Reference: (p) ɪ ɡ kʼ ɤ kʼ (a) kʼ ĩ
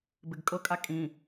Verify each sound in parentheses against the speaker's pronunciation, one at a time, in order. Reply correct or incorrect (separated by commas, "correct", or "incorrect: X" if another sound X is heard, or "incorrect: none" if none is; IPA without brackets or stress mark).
incorrect: b, correct